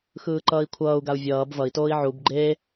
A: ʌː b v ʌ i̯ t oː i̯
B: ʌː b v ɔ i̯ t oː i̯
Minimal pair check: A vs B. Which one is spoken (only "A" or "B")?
A